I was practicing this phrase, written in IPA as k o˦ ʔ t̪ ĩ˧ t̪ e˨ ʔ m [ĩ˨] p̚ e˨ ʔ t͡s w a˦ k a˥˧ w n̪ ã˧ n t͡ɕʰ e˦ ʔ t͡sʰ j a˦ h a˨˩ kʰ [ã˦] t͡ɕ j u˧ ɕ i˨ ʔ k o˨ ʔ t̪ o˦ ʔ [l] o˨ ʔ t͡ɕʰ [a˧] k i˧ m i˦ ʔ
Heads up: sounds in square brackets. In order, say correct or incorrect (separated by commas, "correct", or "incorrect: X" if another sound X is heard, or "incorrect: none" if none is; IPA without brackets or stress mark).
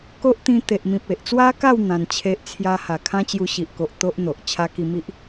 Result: correct, correct, incorrect: n̪, correct